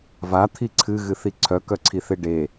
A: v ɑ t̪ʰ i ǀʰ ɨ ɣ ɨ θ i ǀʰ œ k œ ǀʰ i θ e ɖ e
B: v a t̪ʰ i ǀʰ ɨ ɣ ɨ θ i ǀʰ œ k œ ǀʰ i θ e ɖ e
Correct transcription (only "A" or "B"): B